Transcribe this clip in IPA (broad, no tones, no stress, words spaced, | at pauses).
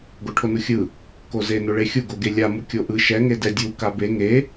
ɡoʈʰonuxʲɯ | koze noɭexʲu ɡoɡelʲa mukʲoʔɯ ʃɛ ŋedɛdʲu kabe ŋe